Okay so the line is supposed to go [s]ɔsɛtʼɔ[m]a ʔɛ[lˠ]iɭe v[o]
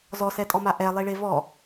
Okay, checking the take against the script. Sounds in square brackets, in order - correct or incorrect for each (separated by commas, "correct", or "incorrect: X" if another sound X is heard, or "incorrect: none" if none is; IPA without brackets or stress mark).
incorrect: z, correct, correct, incorrect: ɔ